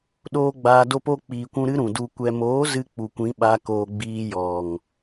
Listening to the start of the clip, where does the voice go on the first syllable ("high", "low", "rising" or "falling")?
high